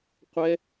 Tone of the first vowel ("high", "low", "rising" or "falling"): high